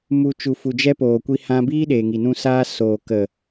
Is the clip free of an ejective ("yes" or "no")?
yes